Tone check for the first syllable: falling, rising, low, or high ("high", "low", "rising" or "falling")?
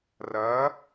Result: rising